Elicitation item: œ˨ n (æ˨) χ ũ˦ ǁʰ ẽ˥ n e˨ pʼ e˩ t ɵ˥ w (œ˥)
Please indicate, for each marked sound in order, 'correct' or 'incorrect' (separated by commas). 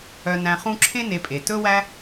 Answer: incorrect, incorrect